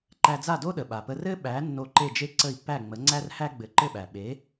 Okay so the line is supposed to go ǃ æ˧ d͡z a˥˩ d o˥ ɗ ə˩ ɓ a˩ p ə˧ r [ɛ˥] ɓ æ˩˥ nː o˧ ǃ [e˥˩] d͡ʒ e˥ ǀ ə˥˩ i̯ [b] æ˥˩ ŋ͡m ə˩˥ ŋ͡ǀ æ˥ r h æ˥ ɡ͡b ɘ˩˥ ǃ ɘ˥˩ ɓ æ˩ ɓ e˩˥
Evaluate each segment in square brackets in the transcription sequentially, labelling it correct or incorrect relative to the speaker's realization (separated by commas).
incorrect, correct, incorrect